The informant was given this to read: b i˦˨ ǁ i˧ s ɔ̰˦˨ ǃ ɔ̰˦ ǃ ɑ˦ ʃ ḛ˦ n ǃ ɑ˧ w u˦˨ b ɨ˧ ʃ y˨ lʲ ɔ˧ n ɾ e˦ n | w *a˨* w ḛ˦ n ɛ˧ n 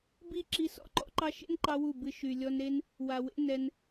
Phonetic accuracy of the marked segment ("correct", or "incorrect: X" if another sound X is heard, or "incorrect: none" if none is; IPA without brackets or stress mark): correct